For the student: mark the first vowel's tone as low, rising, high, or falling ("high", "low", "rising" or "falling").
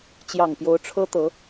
low